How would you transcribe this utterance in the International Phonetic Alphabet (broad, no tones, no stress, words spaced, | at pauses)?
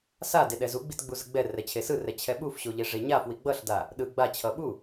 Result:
sa deɗɛzuɡ͡bit ɡ͡buzɯɡ͡bɛrɛ t͡ɕʰesɯrɛ t͡ɕʰɛɓufɕo ʎeʐeɲafwi ɡ͡bʌɬda | ɗɯ ɡ͡bat͡ɕʰʌ ɓu